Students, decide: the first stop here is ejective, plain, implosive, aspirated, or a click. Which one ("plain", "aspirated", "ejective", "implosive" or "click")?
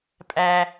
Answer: ejective